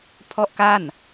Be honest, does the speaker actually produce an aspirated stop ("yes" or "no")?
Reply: yes